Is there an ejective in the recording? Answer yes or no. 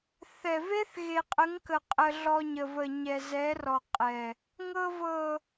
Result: yes